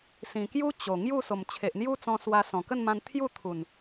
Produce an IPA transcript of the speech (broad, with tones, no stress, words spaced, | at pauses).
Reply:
sĩ˨˩kju˦ t͡ɕo˨˩ ŋju˥˧so˨˩m t͡ɕʰe˨ʔn̪ju˦t͡sɔ̃˧ swa˧ sɔ̃˨˩kə˥˧nmã˧n t̪ʰju˥˧t̪ʰu˨˩n